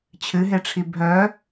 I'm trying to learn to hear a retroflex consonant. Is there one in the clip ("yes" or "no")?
yes